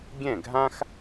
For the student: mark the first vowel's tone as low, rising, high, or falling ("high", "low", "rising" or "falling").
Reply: falling